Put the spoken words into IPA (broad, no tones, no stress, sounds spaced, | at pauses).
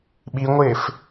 ɓ i ŋʷ ɪː f